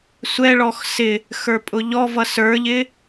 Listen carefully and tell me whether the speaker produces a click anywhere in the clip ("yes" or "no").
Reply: no